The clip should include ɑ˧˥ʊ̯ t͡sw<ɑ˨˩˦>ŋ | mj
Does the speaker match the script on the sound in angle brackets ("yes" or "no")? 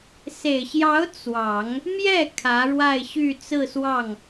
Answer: yes